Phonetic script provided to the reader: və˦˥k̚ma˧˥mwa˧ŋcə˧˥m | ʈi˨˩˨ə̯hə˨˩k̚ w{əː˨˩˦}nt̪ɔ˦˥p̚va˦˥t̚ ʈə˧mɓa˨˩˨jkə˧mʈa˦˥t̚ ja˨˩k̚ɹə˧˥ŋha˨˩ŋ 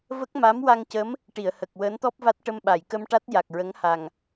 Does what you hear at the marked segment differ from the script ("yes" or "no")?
yes